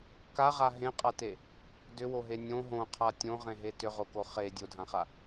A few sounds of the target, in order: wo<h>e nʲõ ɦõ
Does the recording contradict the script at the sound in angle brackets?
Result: yes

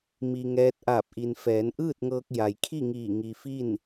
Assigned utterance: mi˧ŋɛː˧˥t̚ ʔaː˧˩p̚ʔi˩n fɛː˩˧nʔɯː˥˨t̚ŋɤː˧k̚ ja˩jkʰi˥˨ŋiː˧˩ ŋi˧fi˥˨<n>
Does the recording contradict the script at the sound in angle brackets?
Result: no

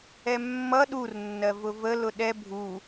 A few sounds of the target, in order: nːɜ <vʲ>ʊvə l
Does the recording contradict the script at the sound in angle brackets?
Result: yes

